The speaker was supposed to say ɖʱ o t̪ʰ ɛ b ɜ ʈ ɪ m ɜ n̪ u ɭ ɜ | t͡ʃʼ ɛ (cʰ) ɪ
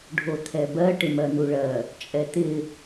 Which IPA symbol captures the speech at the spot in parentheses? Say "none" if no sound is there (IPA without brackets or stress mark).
t̪